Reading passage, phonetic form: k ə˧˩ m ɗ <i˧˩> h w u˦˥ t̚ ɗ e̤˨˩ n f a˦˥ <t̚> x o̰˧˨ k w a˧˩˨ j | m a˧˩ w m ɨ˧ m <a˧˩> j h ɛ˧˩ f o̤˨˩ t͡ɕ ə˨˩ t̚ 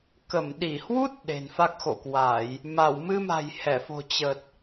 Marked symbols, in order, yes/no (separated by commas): yes, no, no